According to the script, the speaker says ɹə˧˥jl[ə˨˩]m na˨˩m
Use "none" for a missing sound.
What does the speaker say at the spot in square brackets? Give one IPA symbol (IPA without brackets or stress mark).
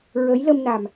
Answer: ə˧